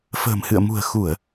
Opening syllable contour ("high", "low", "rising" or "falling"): low